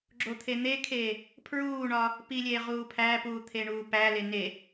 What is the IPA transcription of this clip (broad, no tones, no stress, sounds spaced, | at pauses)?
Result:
ɡ͡ǁ o t̪ʰ e n̪ e kʰ eː | pʰ ɹ uː ɳ ɒ | p i lʲ eː ʁ uː pʰ æ p uː t̪ʰ e ɳ uː p æ l e n e